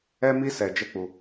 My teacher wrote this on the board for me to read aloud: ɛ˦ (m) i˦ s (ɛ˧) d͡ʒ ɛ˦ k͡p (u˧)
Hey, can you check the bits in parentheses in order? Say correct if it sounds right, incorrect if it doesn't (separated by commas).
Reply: correct, correct, correct